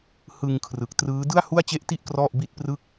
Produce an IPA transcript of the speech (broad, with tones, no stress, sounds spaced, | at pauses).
h ɯ˧ ŋ kʰ r ɯ˨˩ k̚ t r ɯː˦˥ d ɯ˥˩ a̯ h u˥˩ a̯ t͡ɕ e˥˩ ʔ t i˥˩ ʔ k r ɔ˥˩ ʔ b i˥˩ t̚ p r ɯ˥˩ k̚